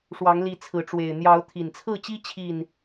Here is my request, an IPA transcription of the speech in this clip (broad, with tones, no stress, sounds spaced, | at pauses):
ʂ w ɑ˨˦ ŋ l i˨˦ t͡sʰ ɹ̩˨˦ ʈ͡ʂ w e˨˩ ɪ̯ n̪ j ɑ˨˦ ʊ̯ t̪ʰ i˨˩ n t͡sʰ ɹ̩˥˨ t͡ɕ i˦ t͡ɕʰ i˥˨ n